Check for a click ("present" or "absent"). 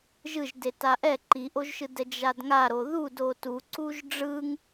present